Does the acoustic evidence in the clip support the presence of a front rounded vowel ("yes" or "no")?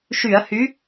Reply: yes